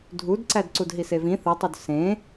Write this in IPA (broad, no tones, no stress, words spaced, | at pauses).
dʱudǀæd ǀudɦisevĩ θɯtˤud sẽ